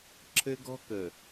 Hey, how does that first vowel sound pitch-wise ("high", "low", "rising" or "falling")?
high